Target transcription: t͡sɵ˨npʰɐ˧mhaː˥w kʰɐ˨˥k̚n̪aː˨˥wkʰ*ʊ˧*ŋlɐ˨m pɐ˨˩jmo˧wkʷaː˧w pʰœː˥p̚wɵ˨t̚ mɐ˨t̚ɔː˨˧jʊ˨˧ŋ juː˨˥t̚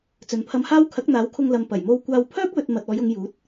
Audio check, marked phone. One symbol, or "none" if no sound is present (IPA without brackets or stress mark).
ʊ˧